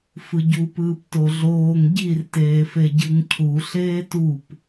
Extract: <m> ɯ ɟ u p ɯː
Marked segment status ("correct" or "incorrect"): incorrect